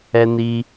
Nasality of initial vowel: oral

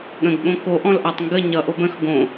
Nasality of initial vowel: nasal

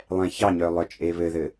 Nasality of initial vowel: nasal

